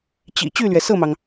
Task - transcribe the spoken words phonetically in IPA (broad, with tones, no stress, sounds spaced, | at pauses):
t͡ɕ ḭ˨˩ t͡ɕ y˥˩ l ɥ ɛ˩ s ɤ˥˩ m ɑ˩ ŋ